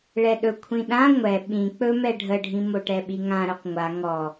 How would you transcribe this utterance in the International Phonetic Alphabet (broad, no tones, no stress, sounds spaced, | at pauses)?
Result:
ɭ ɛ ɗ ɵ kʷʰ ĩ ɗ ã ŋʷ ɛ ɓ ĩ k͡p ɵ m ɛ ɖʱ ə ɖʱ ĩ m o ʈ ɛ ɓ i ŋ ã ɾ ɵ q ŋʷ a ŋ ɔ